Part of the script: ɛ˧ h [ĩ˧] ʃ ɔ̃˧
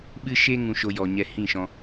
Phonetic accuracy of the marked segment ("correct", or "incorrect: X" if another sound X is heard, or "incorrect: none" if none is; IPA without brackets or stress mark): incorrect: ĩ˦˨